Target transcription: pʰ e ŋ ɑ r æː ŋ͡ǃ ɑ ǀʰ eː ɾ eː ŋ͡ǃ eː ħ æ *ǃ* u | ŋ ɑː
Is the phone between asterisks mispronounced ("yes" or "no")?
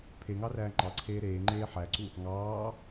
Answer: yes